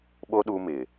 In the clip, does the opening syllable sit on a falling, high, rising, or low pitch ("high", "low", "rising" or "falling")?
high